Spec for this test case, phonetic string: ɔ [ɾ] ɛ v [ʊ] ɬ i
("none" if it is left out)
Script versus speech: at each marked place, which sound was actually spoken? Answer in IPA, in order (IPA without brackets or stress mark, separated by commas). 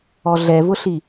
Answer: ɮ, ʊ